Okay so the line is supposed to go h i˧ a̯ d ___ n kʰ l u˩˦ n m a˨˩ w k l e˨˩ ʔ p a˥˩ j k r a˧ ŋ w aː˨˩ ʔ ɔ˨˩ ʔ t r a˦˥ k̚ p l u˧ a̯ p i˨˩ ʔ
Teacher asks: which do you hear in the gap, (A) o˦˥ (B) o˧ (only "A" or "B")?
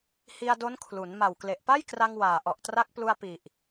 A